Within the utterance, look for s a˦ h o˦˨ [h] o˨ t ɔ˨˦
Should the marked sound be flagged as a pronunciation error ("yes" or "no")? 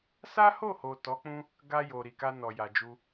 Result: no